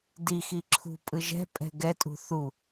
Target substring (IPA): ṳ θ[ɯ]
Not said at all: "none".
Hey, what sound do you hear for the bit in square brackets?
u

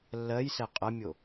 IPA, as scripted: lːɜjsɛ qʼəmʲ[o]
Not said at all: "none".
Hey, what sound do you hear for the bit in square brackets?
o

